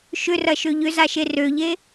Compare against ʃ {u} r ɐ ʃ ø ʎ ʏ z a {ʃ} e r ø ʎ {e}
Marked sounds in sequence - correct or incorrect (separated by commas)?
incorrect, correct, correct